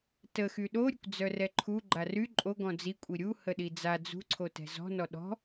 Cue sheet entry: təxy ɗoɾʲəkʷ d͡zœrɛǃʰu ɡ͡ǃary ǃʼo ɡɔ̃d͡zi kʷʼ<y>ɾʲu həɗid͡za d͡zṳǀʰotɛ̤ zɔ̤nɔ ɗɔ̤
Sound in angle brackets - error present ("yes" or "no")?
yes